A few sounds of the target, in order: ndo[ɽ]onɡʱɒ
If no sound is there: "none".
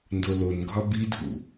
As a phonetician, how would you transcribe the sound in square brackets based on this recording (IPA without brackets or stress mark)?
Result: l